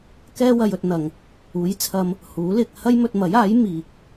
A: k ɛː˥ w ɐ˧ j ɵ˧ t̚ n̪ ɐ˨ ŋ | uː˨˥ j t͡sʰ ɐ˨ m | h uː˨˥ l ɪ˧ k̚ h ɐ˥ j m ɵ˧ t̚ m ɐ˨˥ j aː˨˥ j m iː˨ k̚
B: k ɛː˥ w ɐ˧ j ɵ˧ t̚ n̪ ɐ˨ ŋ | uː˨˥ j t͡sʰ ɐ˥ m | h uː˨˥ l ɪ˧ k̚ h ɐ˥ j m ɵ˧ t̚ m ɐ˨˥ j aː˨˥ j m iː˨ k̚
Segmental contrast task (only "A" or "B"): B